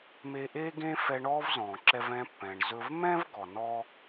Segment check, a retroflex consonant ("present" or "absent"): present